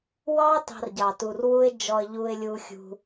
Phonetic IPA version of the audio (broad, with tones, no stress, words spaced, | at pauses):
wɑ˦ tɑ̤˧rɟɑ˨tu˨r wu˦ɪ̯ d͡ʒɔ˧ə̯ʎu˧ɪ̯lʲu˧xʲṳ˧